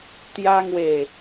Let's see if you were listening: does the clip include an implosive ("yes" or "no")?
no